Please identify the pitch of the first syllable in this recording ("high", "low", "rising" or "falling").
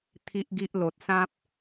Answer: high